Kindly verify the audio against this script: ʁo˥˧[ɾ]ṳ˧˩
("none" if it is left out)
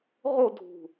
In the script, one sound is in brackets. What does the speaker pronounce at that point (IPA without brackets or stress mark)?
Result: dʱ